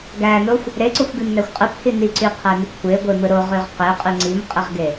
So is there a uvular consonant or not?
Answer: yes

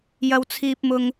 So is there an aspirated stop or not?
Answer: yes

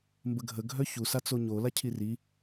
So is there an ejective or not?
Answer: no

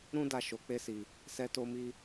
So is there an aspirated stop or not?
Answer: no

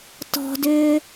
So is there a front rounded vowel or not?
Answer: yes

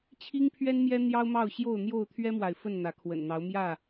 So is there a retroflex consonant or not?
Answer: no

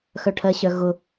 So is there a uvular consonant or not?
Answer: no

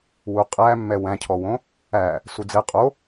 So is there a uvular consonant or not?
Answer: yes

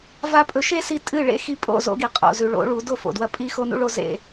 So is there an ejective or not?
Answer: yes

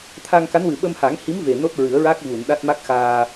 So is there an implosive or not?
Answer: yes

